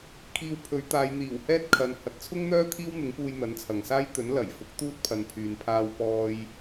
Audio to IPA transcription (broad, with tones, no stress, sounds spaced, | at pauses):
kʰ iː˧ w pʰ ɵ˨˥ ɥ t̪ aː˨˧ j n̪ iː˨˩ w h ɛː˥ t̚ kʰ ɐ˨ n h ɐ˨ t̚ t͡sʰ ʊ˥ ŋ n̪ œː˥ t̪ʰ iː˥ w n̪ ɪ˨˥ ŋ p uː˧ j n̪ ɐ˨˥ n t͡sʰ ɐ˨ ŋ s aː˥ j t̪ ɵ˨˥ n l ɐ˨˩ j f ʊ˨˥ k̚ t̪ uː˥ t̚ pʰ ɐ˨˧ n pʰ yː˨ n pʰ aː˧ w p ɔː˧ j